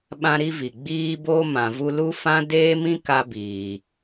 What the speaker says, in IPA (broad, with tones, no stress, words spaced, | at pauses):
ɓã˦ɾi˦vi˨ ɡ͡biː˧bo˧ mã˨vu˧lu˦fã˦ deː˦mĩ˦ka˧ biː˨